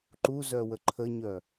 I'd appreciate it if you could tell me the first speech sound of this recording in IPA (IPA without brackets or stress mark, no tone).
ǃ